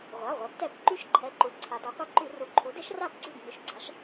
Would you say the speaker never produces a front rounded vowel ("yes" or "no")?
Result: no